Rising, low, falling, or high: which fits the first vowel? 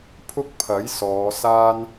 high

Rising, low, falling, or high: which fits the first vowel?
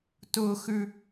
high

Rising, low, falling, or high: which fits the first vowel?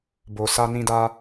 low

